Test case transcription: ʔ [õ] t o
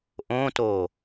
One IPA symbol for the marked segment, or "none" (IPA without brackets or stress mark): õ